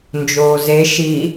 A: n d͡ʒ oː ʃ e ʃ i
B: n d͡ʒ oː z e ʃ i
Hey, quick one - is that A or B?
B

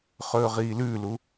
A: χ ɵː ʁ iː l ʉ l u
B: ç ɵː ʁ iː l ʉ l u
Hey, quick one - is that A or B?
A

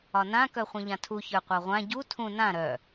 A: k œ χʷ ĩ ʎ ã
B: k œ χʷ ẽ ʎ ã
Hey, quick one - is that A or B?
A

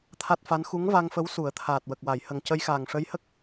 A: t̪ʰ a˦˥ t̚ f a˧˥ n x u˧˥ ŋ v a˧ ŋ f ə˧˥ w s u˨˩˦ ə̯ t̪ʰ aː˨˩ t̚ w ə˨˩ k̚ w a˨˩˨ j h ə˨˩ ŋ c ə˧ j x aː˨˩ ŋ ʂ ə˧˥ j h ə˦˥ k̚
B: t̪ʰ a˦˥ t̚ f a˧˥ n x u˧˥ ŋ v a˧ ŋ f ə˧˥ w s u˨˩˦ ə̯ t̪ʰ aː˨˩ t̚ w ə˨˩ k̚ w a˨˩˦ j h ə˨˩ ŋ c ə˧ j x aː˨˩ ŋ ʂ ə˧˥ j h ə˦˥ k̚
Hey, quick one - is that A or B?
A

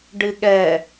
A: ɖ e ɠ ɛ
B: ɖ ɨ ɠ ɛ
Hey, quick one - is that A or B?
B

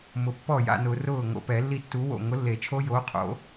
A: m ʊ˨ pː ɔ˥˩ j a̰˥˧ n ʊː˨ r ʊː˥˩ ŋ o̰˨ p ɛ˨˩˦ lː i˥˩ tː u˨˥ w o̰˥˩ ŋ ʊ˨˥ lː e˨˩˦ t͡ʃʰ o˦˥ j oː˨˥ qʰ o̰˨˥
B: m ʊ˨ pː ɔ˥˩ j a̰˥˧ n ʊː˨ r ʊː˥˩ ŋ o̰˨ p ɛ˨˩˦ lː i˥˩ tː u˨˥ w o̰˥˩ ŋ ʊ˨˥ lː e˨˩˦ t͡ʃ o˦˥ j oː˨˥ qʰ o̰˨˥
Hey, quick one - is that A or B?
A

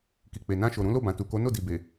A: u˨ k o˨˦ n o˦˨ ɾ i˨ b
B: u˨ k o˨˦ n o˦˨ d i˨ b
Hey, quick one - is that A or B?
B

